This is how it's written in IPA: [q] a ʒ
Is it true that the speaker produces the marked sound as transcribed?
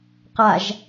yes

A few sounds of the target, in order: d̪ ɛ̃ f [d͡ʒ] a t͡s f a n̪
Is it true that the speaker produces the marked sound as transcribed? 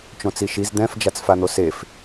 yes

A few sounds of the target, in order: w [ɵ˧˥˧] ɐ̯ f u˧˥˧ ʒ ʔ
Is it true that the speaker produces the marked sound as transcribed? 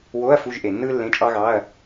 no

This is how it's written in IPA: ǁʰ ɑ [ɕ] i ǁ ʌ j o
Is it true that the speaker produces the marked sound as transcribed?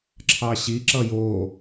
yes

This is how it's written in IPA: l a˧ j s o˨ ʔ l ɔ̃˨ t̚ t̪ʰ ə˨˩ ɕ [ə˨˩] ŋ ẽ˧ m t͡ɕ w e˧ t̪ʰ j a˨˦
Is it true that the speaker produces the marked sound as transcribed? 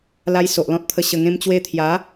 yes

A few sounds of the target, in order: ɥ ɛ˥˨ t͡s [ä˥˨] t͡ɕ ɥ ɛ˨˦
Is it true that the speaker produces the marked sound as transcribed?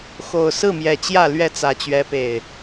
no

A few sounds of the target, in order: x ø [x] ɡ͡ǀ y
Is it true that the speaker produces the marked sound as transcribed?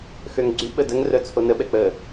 no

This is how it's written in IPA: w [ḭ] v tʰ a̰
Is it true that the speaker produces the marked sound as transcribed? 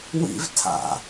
yes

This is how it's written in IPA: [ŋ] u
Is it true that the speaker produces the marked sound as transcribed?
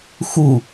no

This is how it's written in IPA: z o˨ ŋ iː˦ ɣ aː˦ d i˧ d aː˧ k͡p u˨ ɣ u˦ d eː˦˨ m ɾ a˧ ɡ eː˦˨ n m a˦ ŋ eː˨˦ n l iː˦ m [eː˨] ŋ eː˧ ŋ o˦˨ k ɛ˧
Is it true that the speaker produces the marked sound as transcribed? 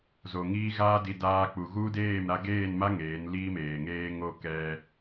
yes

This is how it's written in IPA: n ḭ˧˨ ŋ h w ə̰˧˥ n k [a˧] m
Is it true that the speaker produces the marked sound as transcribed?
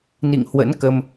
no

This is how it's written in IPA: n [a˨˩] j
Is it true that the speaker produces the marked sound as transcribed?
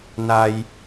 no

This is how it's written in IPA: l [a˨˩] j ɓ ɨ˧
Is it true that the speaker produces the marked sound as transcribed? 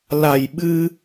yes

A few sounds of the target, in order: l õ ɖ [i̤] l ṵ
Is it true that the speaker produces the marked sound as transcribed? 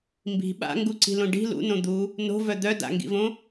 yes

